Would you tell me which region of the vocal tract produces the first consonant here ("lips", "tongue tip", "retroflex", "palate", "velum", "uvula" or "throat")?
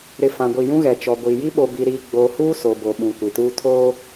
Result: tongue tip